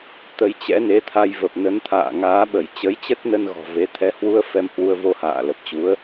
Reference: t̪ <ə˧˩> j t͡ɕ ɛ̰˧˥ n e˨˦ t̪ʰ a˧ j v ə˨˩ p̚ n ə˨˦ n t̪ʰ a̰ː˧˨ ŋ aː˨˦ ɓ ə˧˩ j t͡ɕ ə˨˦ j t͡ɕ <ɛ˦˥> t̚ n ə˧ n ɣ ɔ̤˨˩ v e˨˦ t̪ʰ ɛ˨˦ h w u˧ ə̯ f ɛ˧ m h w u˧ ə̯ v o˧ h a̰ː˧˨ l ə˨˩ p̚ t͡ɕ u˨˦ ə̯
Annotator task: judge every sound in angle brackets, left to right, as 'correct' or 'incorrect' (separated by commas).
incorrect, incorrect